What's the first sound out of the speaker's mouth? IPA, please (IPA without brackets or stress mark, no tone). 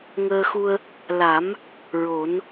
ŋ